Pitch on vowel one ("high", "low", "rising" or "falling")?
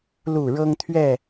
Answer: falling